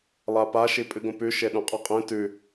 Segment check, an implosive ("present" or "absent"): present